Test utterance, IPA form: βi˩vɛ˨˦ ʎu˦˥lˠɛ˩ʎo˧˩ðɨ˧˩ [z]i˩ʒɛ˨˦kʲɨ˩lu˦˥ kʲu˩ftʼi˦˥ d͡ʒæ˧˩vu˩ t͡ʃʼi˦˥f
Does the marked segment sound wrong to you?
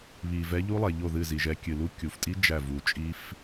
no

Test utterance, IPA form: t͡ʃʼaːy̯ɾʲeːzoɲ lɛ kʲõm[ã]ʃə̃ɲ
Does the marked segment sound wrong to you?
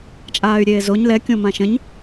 no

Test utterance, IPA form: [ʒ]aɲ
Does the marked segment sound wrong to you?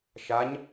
yes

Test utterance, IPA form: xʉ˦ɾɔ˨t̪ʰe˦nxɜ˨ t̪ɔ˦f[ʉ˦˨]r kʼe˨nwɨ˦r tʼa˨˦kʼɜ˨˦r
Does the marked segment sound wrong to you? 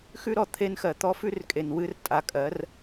yes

